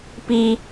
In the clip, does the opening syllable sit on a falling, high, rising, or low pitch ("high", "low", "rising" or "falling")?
high